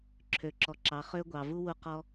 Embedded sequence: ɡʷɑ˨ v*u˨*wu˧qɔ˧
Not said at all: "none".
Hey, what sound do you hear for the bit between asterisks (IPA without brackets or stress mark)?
u˦